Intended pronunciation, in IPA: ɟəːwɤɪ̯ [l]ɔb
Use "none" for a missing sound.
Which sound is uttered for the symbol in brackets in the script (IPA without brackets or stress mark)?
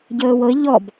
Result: ʎ